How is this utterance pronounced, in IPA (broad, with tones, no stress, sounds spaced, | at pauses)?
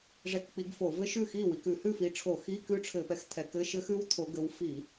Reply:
ʐ ɛ˧˥˧ k k͡p i˨˦ ɡ f o˧˩˧ v ɘ˦˥ ʃ ʉ˥˩ x i˥˩ w i˨˦ k ʉ˧˩˧ h ʉ˥˩ f i˨˦ ʈ͡ʂʰ o˧˩˧ x i˧˥˧ k ʉ˦˥ ʈ͡ʂʰ ɘ˧˩˧ p ɛ˨˦ x t̪ʰ ɛ˨˦ k ɘ˧˥˧ ʃ ɘ˦˥ x ʉ˦˥ w t̪ʰ o˨˦ ɡ ɘ˨˦ w f i˧˩˧